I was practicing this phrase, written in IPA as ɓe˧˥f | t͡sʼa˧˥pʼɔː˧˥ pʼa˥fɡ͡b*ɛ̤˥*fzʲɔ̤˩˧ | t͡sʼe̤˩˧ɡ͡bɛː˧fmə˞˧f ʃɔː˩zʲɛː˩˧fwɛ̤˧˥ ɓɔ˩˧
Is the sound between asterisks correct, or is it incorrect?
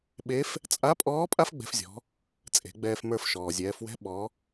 incorrect